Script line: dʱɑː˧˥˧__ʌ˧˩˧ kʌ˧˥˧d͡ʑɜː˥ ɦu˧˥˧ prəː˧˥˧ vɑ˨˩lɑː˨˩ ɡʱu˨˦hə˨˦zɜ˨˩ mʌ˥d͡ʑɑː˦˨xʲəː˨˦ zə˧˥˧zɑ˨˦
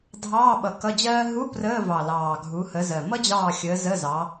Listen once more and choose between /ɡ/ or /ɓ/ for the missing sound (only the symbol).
ɓ